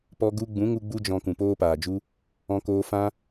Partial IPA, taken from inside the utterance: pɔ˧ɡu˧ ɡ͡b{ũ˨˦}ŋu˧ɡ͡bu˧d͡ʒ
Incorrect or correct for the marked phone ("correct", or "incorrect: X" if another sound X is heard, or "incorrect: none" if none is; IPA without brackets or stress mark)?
correct